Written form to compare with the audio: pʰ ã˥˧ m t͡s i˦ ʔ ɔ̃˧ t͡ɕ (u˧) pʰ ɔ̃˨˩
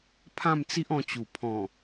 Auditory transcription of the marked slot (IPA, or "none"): u˨˩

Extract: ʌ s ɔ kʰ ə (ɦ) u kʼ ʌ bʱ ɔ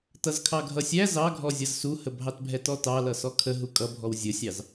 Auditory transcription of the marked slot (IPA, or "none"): ɦ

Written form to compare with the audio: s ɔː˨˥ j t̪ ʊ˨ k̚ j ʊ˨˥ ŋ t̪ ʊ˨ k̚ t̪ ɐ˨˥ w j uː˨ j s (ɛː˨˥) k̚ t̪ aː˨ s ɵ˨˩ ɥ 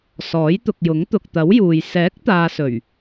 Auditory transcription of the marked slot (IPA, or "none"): ɛː˨˥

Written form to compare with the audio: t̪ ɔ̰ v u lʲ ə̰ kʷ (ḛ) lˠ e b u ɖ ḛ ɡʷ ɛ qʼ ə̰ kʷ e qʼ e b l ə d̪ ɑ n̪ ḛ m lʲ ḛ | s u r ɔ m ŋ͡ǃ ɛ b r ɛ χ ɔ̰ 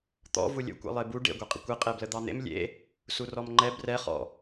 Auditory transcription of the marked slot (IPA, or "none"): ɛ̰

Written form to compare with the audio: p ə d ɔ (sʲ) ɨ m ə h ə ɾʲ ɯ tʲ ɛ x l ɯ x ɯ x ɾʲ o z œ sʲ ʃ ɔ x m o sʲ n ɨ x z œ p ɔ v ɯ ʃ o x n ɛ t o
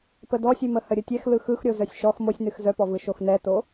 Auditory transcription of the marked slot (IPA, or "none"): sʲ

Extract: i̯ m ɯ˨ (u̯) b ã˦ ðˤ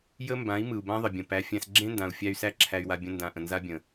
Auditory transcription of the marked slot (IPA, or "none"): u̯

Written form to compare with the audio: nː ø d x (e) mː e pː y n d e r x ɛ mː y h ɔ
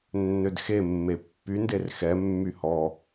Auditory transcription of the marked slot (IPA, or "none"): e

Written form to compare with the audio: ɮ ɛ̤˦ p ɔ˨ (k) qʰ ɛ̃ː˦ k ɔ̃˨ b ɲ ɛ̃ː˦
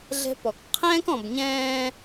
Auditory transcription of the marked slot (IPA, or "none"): k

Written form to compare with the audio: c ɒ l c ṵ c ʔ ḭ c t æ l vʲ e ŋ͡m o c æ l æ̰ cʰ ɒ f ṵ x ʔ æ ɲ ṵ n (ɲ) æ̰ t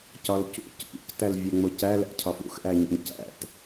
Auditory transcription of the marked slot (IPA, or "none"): c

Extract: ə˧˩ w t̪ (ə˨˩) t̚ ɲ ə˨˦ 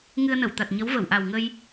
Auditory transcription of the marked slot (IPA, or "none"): a˨˩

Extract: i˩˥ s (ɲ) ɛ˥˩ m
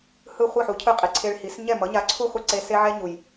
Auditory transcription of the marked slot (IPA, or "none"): ɲ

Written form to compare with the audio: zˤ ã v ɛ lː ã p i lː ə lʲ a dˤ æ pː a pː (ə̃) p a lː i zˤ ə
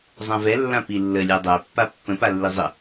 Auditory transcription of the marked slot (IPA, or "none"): ə̃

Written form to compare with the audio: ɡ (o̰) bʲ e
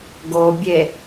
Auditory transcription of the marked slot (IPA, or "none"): o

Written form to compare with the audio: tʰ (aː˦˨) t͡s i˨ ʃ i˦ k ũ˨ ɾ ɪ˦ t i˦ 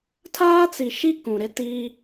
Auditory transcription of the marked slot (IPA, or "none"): aː˦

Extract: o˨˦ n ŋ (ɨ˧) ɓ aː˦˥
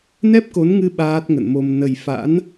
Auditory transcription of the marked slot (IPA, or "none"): ɨ˧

